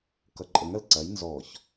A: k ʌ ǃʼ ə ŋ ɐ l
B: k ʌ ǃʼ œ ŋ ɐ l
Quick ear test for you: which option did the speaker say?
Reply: A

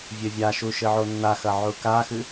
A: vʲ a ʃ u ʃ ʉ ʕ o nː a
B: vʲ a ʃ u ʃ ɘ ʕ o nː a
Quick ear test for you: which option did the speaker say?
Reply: B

